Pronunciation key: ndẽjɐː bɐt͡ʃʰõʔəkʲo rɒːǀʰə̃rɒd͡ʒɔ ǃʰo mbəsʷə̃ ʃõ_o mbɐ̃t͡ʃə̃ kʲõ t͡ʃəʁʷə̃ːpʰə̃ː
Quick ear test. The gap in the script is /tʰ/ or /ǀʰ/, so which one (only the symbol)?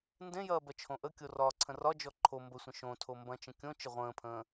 tʰ